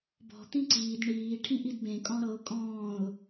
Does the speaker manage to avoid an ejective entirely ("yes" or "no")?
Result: no